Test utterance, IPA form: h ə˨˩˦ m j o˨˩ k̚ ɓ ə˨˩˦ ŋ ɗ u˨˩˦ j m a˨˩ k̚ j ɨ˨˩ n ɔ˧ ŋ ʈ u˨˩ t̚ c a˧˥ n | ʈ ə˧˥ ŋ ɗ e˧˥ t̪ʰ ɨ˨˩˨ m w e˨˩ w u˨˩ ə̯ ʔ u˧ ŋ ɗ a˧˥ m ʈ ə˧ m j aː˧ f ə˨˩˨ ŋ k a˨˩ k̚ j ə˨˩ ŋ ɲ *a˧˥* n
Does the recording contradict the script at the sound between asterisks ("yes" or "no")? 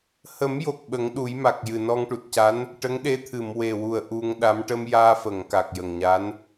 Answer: no